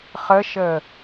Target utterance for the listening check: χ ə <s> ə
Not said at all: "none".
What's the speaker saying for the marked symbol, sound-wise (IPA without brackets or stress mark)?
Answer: ʃ